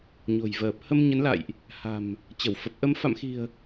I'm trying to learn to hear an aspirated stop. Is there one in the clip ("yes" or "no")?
no